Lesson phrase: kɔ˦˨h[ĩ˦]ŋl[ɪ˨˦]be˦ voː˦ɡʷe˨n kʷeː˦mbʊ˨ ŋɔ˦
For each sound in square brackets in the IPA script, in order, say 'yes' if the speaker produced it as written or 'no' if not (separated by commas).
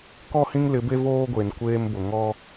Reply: yes, yes